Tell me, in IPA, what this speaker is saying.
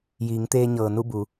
j iː˩˧ ŋ t̪ eː˧ ɲ ɤː˩ n u˥˨ b u˩˧

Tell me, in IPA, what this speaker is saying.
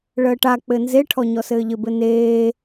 ɭ əː ʈ a k͡p ɘ n z e ʈʰ ɔ ɲ ɔ s ɘː ʎ ɘ b ɘ n eː

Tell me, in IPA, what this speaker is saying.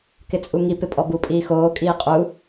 k ɪ t͡sʼ u ŋ i p ɪ pʼ ɔ b u pʼ iː x oː kʼ iː qʼ u

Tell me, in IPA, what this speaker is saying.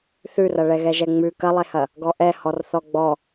θ ʉ r ɐ ɭ ɛ ɣ ɛ ʒ ɛ ŋ͡m ʉ k ɐ lˠ e h ɐ | ɡ ɔ ʔ ɛ h ɔ r θ ɔ ɡ͡b ɔ

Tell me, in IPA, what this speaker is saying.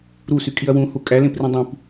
ɾ u s y kʼ i ɐ̯ w ũ h u kʼ æ l ẽ p r ĩ dˤ ĩ p

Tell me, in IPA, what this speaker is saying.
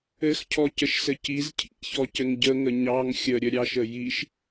ɘ x cʰ ɔ c ə ʃ s ɘ c i z cʰ ḭ ç ɔ c ɘ ŋ ɟ ə ŋ ə ɲ ɑ ŋ xʲ ə ɾʲ ə ɾʲ ɑ ʃ ə j i ʃ

